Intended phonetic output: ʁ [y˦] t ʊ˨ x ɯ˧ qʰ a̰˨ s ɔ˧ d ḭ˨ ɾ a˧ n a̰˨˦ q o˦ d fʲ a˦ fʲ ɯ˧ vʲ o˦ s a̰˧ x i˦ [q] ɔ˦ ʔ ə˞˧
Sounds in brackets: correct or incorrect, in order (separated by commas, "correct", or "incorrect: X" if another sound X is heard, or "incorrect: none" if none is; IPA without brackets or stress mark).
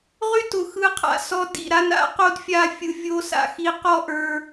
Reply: correct, correct